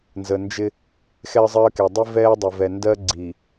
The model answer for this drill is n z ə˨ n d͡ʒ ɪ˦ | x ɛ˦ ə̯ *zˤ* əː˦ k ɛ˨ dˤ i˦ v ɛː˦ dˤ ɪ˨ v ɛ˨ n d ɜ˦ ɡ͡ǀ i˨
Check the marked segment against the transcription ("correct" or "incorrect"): correct